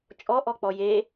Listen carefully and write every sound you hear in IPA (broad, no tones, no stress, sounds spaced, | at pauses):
t͡ʃʼ ɔ ʔ ɔ k͡p ɔ j e